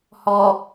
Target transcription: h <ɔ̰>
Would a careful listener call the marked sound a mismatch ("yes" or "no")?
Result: yes